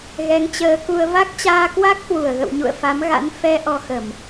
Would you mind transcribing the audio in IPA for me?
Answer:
ɣ ɛ˨˦ ŋ t͡ɕ əː˨˦ k u˧ ə̯ v a˦˥ k̚ t͡ɕ aː˧ k w a˦˥ k̚ h w u˧˩ ə̯ ɣ ə̰˧˨ w ɲ ṵ˧˨ ə̯ f a˨˦ m ɣ a̰˧˥ n f ɛ˧ ʔ ɔ˧ x ə˧˩˨ m

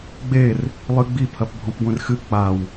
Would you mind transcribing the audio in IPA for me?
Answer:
ɡ͡b e r | lˠ ɨ ɡ͡b i pʰ ɐ p bʱ ɔ̃ p ɡʷ ẽ r x ɨ k͡p a w

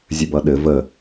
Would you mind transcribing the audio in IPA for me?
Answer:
zʲ ɘ b ʌ ɗ ɘ v ə

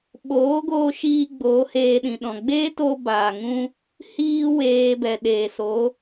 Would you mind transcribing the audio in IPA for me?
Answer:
ɓ oː˨˦ ɡ oː˧ ʃ iː˧ ɡ͡b oː˨˦ h eː˧ ɗ ĩ˨ ɗ ɔ̃˨ ɡ͡b eː˦ t o˧ b aː˨ ŋ ũ˦ | h iː˦ w eː˧ b ɛ˨ ɗ eː˨ s o˨˦

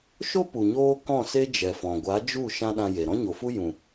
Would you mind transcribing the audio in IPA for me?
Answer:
ʃ o˦ p u˨ ɲ oː˦ k ɔ̃˦˨ s e˦ d͡ʒ ɛ˨ f ɔ̃˨ ɡʷ a˨˦ d͡ʒ u˦˨ ʃ ã˦ ɗ ã˧ j e˨ ɾ ɔ̃˦ ɲ o˨ f u˦ j ũ˨

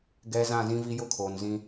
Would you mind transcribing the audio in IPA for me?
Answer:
ɡ ɛ˨ z ã˦˨ z ĩ˦ v i˦ j ʊ˦ kʰ oː˨ n z ĩ˦

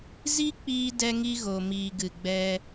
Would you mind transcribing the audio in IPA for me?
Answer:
z i˦ k͡p iː˧ d ɛ˦ ŋ i˦ ɣ o˨ m iː˨ ɡ ɨ˨ ɡ͡b ɛ˧

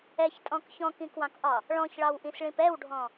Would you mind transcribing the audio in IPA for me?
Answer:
ɛ ç tʼ ɔ̃ k ç ɔ̃ k ĩ k w ɑ̃ k ʔ ɒ | ɭ ɔ̃ ç ɭ ɑ w ʔ ĩ s ɭ ĩ p ɛ w ɖʱ ɔ̃

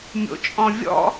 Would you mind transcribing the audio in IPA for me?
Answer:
mʲ o̰ t͡ʃʼ ɔ̃ vʲ ɔ̰

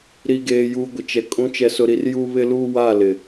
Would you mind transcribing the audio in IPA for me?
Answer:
ɾ i˨ ɡ eː˨ j uː˨ ɡʷ ɪ˨ t͡ʃ ɛ˨ kʼ ũ˨˦ t͡ʃ ɛ˨ s ʊ˨ ɾ i˨ r j u˦ β ɪ˦ l uː˦ w a˦˨ l ɪ˨

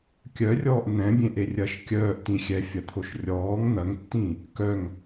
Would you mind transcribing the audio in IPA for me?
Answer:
kʲ œ rʲ ɔː ʔ n̪ ɛ̃ bʲ ẽ ʔ e rʲ ɐ ʃ kʲ œː ʔ t ĩ xʲ ɛ fʲ ɐ t̪ʰ o ʃ rʲ ɔː ŋ n̪ ɐ ŋ tː ĩ | k œ ŋ

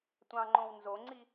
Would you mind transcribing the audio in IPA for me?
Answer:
tʷ ɑ̃ ŋ͡ǃ õ w n z o ŋ͡ǀ i

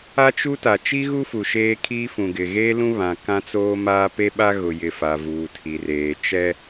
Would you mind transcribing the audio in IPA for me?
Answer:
a˦ t͡ʃ u˦ t a˨ t͡ʃ i˦ ɣ u˦ f u˨ ʃ eː˦ kʰ iː˦ f ũ˨ ɡ ɪ˨ ɣ eː˦ l ũ˦ β ã˨ k ã˦ t͡s oː˦ m aː˦ p e˦ ɓ a˦ ɣ ʊ˨ j ɪ˨ f a˨ v uː˨ tʰ i˨ r eː˨ t͡ʃ ɛ˦

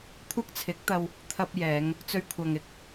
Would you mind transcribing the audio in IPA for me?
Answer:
kʷʰ ɐ˥ k̚ t͡sʰ ɪ˨˥ k̚ t̪ ɐ˧ w | t̪ʰ ɐ˧ p̚ j ɛː˨˧ ŋ | t͡s ɵ˧ ɥ kʷʰ ɐ˨ ŋ ɪ˨ k̚

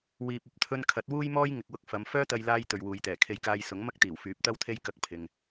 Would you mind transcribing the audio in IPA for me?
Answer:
w iː˨ p̚ ɐ˨˥ p̚ t̪ʰ ɵ˧ n kʰ ɐ˨˥ t̚ w uː˥ j m ɔː˥ j ŋ ɪ˨ k̚ w ʊ˧ k̚ f ɐ˨˧ m f œː˥ t̪ ɐ˧ j l aː˧ j t̪ ɵ˨ ɥ w uː˨ j t̪ ɛː˨˩ kʰ e˧ j k aː˧ j s ʊ˨˥ ŋ m ɐ˥ k̚ t̪ iː˨˩ w f yː˨˥ p̚ t̪ ɐ˥ w t̪ʰ e˥ j k ɐ˧ k̚ pʰ ɪ˨ ŋ

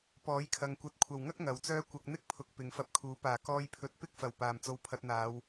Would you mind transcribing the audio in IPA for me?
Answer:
p ɔː˨˥ j kʰ ɐ˧ ŋ kʷ ɐ˨˥ t̚ kʷʰ ɐ˨ w ŋ ɐ˥ k̚ ŋ ɐ˨ w t͡s œː˥ kʷ ɐ˧ k̚ n̪ ɪ˥ k̚ pʰ ʊ˨ k̚ p ɪ˨˧ ŋ f ɐ˧ p̚ kʰ uː˨˥ p aː˨˩ k ɔː˧ j pʰ ɵ˨˥ t̚ p ɪ˥ k̚ f ɐ˨˩ w p aː˨ m t͡s o˧ w pʰ ɐ˧ t̚ n̪ aː˨˧ w

